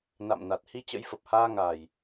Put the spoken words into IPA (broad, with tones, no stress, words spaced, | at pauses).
na̰˧˨mna˨˩t̚ hi˧t͡ɕə̰˧˥jfə˨˩p̚haː˧ ŋaː˨˩j